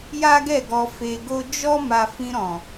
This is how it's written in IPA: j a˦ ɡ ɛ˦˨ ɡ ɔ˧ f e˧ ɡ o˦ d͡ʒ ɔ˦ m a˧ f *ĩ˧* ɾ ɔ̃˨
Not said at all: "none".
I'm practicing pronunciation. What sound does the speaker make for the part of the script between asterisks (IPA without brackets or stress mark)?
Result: ĩ˧